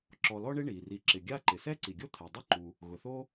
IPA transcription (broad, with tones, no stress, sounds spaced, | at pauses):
ǁ ɔ˨ l ɔ˦ ɳ e˦ ɳ i˩ r i˨ ǁ ɪ˩ ɡʲ a˦ ǃ ɪ˩ s ɛ˥ ǀ i˩ ɡʲ o˥ t̪ʰ ɛ˩ dˤ ʊ˥ ǃ u˩ | ɣ ʊ˩ θ o˥